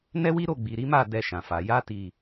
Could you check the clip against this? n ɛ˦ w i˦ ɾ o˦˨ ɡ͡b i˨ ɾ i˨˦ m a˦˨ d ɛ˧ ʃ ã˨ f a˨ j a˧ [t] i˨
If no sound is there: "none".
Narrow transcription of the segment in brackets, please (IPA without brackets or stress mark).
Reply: t